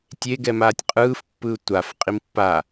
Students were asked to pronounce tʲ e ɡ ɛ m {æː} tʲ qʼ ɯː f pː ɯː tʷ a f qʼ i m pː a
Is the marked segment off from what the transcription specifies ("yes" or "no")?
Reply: yes